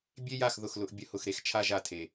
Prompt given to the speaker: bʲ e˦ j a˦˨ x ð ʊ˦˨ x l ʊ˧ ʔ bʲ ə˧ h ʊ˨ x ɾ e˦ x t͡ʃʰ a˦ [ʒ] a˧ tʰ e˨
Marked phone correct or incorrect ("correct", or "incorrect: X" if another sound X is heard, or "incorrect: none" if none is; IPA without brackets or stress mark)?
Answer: correct